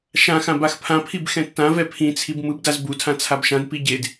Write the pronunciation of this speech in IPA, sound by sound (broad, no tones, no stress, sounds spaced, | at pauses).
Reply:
ʃ ã x ã b a x pʰ ã pʰ i b x ɛ̃ tː ã v ɛ pʰ ĩ t͡sʰ i b m ɯ b d a z b u tʰ ã t͡sʰ a b ʃ ã d p i ɟ e d